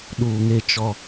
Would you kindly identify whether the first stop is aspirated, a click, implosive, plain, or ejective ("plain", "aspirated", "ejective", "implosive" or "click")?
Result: implosive